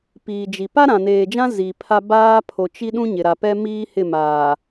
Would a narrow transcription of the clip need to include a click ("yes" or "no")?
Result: no